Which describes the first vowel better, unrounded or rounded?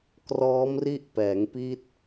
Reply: rounded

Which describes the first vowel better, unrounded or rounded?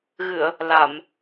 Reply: unrounded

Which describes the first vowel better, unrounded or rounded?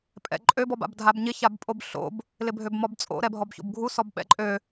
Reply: unrounded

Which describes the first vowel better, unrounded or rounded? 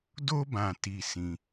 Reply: rounded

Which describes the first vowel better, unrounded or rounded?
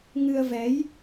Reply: unrounded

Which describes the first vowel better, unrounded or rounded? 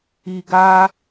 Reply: unrounded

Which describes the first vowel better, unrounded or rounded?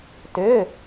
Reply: rounded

